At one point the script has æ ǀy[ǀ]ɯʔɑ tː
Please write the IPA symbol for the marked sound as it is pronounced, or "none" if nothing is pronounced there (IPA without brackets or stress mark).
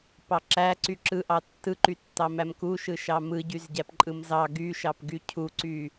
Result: ǁ